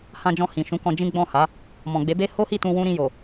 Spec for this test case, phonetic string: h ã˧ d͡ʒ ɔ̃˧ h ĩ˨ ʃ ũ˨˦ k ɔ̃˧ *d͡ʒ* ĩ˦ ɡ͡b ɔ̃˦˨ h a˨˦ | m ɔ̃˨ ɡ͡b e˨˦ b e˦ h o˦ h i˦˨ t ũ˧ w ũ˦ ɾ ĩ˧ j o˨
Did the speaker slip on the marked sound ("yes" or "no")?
no